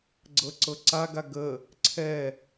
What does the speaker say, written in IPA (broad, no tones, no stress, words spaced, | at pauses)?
ɡ͡ǀɤǀɤǀa ɡaɡə | ǀʰɛ